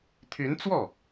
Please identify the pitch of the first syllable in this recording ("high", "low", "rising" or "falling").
rising